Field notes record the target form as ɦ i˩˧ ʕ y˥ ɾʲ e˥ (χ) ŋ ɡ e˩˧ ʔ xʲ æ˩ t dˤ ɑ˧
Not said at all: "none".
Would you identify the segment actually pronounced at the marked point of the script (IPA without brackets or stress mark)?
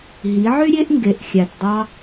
ʔ